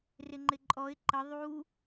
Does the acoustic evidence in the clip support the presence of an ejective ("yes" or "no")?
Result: yes